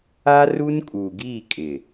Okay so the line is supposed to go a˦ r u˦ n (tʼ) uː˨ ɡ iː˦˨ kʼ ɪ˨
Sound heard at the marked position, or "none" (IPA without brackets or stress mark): kʼ